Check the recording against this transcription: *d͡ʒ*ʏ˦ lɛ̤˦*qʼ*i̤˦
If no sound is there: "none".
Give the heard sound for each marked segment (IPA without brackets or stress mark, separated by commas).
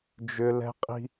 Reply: d͡ʒ, qʼ